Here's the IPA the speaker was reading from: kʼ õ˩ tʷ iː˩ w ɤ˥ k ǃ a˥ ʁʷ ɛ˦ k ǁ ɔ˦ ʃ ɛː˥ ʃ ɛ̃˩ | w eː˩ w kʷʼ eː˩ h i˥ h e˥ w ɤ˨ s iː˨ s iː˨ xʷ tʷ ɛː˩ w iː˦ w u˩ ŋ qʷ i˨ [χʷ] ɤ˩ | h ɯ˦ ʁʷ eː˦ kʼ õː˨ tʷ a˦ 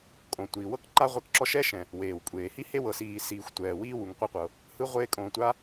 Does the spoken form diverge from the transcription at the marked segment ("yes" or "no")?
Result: yes